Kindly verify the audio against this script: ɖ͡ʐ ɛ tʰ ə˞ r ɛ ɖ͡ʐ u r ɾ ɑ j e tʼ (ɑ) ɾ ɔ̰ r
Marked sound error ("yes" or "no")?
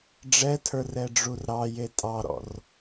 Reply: no